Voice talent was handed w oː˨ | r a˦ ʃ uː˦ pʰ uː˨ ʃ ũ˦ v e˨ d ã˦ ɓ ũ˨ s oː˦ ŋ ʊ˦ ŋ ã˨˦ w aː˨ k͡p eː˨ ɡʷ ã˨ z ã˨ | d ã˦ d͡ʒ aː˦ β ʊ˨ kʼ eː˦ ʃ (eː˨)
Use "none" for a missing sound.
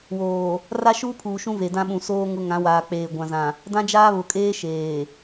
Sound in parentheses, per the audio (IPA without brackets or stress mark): eː˨